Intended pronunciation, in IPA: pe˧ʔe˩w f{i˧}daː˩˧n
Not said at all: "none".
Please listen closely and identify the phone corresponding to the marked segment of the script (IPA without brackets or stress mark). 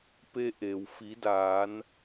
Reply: i˩˧